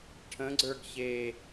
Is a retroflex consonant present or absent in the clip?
present